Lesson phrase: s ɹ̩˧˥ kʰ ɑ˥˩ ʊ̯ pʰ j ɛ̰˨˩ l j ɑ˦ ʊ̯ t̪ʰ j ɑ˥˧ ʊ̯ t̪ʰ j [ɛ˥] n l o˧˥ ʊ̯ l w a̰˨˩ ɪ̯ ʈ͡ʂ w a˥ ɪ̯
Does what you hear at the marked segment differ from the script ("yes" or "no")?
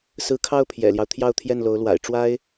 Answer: yes